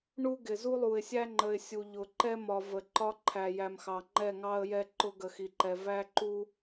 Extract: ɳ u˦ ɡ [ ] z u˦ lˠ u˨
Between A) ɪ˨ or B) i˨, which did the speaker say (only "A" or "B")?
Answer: A